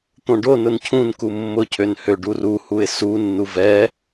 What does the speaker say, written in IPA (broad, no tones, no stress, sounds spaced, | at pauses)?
t̪ õ ɖ o n ʊ n cʰ ũ n k u mː ʊ cʰ ø n h ø ɖ u r u h u ɪ̯ s u nː u v ɛ